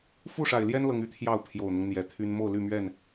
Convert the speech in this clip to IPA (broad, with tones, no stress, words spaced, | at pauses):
fu˥˨ʂa˨˩ɪ̯ljɛ˦n lɤ˦ŋy˦t̪ʰjɑ˥˨ʊ̯ pʰjo˨˩ʊ̯n̪ʊ˦ŋn̪jɛ˨˩t̪ʰy˦n mo˥˨ʊ̯ly˥˨mɥɛ˥˨n